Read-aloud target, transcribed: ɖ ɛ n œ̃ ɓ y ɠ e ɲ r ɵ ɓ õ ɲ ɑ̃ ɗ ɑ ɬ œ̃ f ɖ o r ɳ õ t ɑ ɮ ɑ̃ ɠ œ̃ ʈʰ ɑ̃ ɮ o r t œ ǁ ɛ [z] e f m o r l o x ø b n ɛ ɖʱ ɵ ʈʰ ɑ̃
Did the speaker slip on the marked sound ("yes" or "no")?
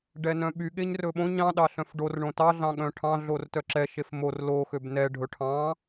yes